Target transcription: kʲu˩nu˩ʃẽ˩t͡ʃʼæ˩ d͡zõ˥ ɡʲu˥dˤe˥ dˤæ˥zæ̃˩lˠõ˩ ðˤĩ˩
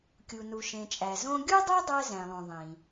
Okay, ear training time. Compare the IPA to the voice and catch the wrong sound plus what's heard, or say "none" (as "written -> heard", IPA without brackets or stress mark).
d͡z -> z